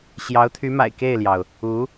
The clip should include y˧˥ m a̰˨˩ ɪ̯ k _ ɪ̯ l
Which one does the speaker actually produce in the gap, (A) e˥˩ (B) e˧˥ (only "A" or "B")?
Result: A